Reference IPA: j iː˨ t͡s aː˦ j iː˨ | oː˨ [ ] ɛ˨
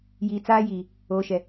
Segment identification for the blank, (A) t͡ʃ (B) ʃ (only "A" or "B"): B